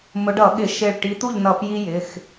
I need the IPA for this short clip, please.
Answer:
m ʊ˨˦ ɖ ʌ˧˩˧ ɠ ɪ˧˩˧ ʃ ɪ˧˩ ɭ ʈ i˨˦ t̪ u˥˨ ʎ n ʌ˧˩˧ p j i˥ j ɪ˩˧˩ x

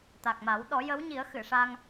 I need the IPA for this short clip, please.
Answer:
t̪ a˨˩ k̚ m a˨˩˦ w ɗ ɔ˨˩˦ j ə˧˥ w ɲ i˨˩˦ ə̯ x ɨ˨˩˨ ʂ a˧ ŋ

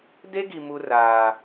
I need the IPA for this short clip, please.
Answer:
d e˥ ɡ i˦ m u˥ r aː˦

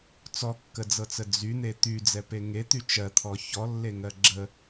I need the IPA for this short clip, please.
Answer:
t͡s ɔ kː ə d͡z ɤ t͡s ə d͡z y n̪ e t̪ y d͡z ɛ p e ŋ e t̪ y t͡ʃ ɜ t̪ʰ ɔ ç ɔ lː e ŋ ɜ ɡ͡ǁ ə

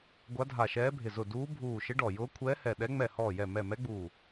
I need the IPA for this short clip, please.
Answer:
ɡʷ a˧˥ dʱ a˧˩ ʃ ɛː˧˥ bʱ ɪ˧˩ z ʊ˧˩ d uː˧˥ bʱ uː˧˩ ʃ ɪ˧˥ ɖ ɔ˧˩ j ʊː˧˥ kʷʰ ɛː˧˥ h ɛ˧˩ ɗ ɛ˧˥ ŋ͡m ɛ˧˩ h ɔː˧˩ j ɛ˧˩ m ɛ˧˩ m ɛ˧˥ ɡ͡b uː˧˩

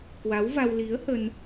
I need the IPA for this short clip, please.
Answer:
k w a˨˦ w v a˧ w l i˨˦ ə̯ h ə˧ n

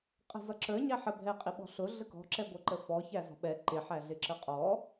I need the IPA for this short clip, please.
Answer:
qʼ ɛ̤ z ʌ ǁ ə˞ ɲ æ ħ ə bʱ ɛ qʼ ɪ ɓ ɔ̤ ɬ ʊ ɮ ə k ɔ̤ ǁ ɛ ɡʷ ɛ ǃ ə f ɔ ç æ z ɔ̤ ɓ ɛ ǃ ɪ ħ æ ɮ ɪ ǁ ə qʼ ɔ

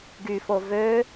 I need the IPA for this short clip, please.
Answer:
ɡ y f o v ø

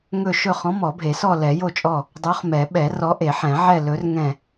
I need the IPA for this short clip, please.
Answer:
ŋ ɵ˦˨ ʃ ɵ˦˨ χ ɔ̃˨˥ m ɔ˨˩˦ bʱ e˨˩˦ s ɔ˦˨ l ɛ˨˩˦ j o˦˨ t͡ʃʼ ɔ˦˨ | dˤ o˨˥ χ m ɛ˨˩˦ ɓ ɛ˨˩˦ r ɔ˨˥ ʔ e˨˩˦ ħ ɛ̃˨˩˦ ʕ ɛ˦˨ l ɵ˨˥ r ŋ ɛ̃˦˨

